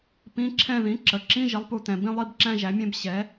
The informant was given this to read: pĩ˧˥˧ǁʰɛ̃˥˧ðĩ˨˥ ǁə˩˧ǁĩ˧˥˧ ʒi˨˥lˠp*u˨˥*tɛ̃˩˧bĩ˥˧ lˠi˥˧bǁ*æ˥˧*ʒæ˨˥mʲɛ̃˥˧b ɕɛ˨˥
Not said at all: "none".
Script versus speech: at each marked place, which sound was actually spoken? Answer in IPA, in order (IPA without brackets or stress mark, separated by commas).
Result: u˨˥, æ̃˥˧